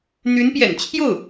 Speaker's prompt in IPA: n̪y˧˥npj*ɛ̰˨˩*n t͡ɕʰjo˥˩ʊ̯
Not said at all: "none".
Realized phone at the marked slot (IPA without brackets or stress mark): ɛ̰˨˩